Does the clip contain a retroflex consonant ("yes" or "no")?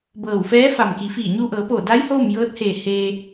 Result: no